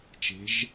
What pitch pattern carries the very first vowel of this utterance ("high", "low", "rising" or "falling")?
rising